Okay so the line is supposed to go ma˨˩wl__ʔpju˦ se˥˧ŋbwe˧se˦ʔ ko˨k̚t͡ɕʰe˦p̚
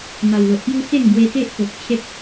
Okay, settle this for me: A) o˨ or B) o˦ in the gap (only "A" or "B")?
A